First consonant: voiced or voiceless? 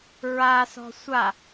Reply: voiced